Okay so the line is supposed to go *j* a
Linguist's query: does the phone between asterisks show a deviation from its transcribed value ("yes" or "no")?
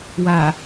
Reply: yes